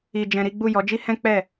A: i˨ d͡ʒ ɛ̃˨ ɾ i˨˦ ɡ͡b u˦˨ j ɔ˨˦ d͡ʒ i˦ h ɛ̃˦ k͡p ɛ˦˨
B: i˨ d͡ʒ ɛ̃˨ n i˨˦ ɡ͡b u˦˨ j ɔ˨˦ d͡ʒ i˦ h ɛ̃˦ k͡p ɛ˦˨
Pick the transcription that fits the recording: A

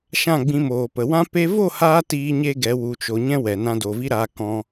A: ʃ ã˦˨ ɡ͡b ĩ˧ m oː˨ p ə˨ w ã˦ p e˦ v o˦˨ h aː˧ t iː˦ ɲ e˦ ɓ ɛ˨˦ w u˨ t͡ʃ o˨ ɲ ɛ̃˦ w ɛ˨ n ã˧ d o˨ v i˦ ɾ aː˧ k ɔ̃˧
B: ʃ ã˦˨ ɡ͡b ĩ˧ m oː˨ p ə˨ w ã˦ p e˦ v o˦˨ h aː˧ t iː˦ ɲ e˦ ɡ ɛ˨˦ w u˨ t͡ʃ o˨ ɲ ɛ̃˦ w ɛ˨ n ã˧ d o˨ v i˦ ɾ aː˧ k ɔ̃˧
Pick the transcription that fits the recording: B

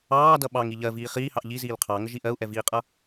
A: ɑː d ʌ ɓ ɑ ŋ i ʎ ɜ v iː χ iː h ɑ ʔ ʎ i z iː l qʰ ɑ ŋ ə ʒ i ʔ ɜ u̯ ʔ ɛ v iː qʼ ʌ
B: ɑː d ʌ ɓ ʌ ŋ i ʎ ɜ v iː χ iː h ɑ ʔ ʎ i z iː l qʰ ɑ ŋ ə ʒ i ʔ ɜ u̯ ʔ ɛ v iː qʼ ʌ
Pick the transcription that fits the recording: A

